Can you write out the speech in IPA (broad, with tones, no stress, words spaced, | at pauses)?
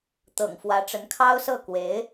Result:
t̪ɤ̰˨˩ŋfwä˧˥ʈ͡ʂə˧˥n kʰɑ˥ʊ̯sɤ˥˩ kwe˧˥ɪ̯